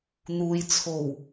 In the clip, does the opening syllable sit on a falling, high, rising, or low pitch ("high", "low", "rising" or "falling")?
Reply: low